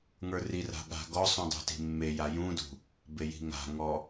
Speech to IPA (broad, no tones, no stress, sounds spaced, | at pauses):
ŋ ə˞ r i r a̤ ɠ a̤ ɡ ɔ sˤ ũ dˤ ṳ t i̤ mː e j a j ũ d ṳ | b e j i̤ ŋ a̤ ŋ ɔ